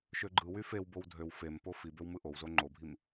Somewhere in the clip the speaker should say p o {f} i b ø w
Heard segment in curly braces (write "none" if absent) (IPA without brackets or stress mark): f